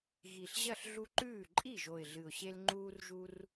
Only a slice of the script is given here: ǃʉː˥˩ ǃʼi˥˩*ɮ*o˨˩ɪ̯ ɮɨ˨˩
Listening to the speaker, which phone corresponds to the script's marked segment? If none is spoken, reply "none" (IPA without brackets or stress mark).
ʒ